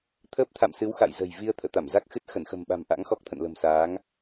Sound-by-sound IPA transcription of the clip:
t̪ʰ əː˦˥ p̚ t̪ʰ a̰˧˨ m s ɨ˨˦ w x a̰˧˨ j z ə̤˨˩ j v i˧ ə̯ t̪ʰ ə̰ː˧˨ t̪ a˧˩ m z a˦˥ k̚ x ɨ˦˥ t̚ x ə˧˩ n x ə̤˨˩ m ɓ a̤˨˩ m ʔ a̰˧˥ ŋ x ɔ˦˥ k̚ t̪ʰ ə̰˧˨ n l ə̤˨˩ m s aː˨˦ ŋ

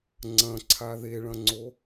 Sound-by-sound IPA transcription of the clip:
ŋ͡ǀ ɐ̃ ǀʰ a ð e ɭ ɐ̃ ŋ͡ǀ o

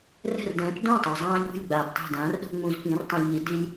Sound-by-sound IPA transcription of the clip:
r ɛ̤˥˩ r d ɛ̃ː˩˥ p d õ˥˩ tˤ o˩ zˤ ãː˧ ʎ ṳ˥˩ lʲ ɡ͡b a˩ d tˤ e̤˥˩ d ãː˩˥ r ɗ o̤˥ ŋ͡m ũ˧ z p ĩ˩˥ r tˤ ẽ˧ lʲ ʎ i˩˥ d i˥ lʲ

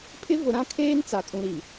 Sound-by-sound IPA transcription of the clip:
pʰ ɪ˦ v ʊ˨ ɾ ã˦ kʰ eː˦ n t͡s a˨ kʼ ũ˨ ɾ i˨

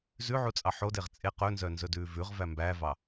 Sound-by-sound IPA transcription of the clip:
z ʉ ʕ u t͡sʼ ɑ ħ o d e ʁ t͡sʼ e q ɵ n z œ n z ɵ d ʉː v ʉ ʁ v æ m b æ v ɑ

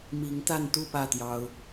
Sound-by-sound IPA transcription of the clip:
m i˨˦ ŋ t̪ a˥˨ n t̪ u˥˨ p ä˥˨ t̪ j ɑ˦ ʊ̯

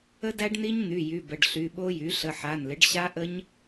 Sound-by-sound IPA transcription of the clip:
ə˦˥ d æ˦˥ ɖ n i˦˥ ɲ n̪ y˩˧˩ j y˩˧˩ b ə˩˧˩ ɖ ɬ y˩˧˩ ɓ o˦˥ j y˩˥ ɬ ə˩˧˩ ħ a˩˧˩ n l ɪ˩˥ ɖ ɕ a˦˥ ʔ ə˦˥ ɲ

